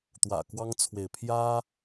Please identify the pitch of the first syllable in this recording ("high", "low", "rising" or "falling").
low